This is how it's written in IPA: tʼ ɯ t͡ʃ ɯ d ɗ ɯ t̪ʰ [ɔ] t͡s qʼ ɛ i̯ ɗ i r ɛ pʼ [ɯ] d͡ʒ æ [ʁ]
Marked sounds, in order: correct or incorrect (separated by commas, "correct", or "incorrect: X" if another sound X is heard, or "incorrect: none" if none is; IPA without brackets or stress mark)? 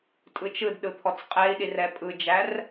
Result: correct, correct, incorrect: r